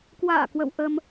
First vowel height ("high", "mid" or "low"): low